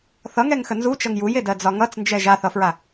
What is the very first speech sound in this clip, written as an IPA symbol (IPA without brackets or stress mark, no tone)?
θ